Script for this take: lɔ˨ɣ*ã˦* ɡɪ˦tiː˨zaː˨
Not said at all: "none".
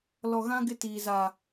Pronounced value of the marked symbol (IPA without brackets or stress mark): ã˦